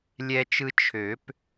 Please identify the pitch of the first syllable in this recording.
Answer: high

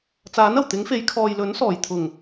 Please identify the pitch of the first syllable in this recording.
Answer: rising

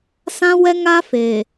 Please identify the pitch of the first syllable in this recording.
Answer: high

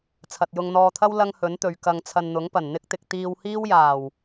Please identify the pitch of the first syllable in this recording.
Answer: low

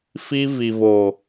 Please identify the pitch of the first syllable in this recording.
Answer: high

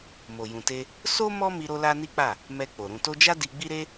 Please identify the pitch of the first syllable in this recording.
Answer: low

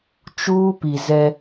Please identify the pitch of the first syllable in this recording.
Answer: high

